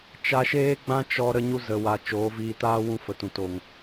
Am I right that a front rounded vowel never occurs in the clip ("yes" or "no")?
yes